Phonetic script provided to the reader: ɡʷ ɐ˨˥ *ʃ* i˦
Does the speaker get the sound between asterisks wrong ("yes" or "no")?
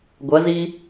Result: yes